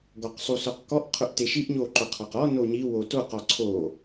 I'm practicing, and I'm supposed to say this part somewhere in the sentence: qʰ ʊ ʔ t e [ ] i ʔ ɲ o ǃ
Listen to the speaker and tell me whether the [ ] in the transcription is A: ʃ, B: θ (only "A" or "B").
A